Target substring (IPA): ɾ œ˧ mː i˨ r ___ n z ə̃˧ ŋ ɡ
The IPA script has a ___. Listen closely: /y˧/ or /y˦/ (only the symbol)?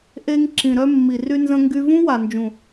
y˧